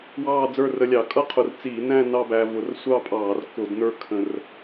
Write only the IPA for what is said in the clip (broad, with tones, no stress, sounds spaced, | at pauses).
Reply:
w ɑː˥˧ d͡z ə˞˥˧ r ə˧ lʲ ɑ˧˩˧ kʼ ʌ˥ qʰ ʊ˨˩ r t͡s iː˧˩˧ n æ̃˥˧ n ɑ˥˧ b æ˧ v ʊ˧˩˧ r sʷ ɑ˥˧ pʼ ɑː˧˩˧ r k ʊ˧˩˧ d n ə˞˥ kʰ ə̃˧ r